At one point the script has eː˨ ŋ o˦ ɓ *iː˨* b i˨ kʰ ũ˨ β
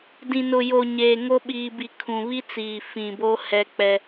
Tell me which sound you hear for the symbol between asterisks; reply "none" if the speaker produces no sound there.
iː˨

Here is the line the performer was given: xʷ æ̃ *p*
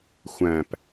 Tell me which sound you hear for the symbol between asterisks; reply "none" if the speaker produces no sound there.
p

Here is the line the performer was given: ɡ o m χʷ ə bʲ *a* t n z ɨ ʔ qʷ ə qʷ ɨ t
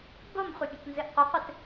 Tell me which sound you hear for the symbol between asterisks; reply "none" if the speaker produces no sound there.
ə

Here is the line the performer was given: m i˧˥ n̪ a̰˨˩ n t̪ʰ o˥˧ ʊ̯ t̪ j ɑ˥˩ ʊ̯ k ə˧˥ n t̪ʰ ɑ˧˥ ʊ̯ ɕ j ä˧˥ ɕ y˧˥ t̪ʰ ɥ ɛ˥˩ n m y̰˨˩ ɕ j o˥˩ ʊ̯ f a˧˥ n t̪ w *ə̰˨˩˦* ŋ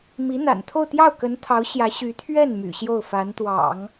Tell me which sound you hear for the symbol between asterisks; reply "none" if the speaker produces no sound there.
ɑ̰˨˩˦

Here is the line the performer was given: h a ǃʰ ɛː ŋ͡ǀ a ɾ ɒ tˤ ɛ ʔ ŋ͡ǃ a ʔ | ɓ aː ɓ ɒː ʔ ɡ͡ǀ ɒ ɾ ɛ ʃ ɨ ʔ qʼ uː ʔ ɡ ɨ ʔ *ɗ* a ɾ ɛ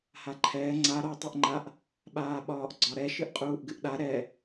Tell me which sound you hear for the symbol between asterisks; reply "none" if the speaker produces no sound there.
ɗ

